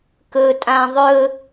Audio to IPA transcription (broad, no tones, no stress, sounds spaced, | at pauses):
k ɵ tʼ ã ðˤ ɵ